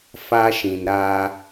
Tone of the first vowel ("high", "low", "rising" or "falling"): high